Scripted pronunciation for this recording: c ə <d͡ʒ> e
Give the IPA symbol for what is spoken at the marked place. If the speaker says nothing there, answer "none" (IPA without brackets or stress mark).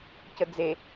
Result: d͡z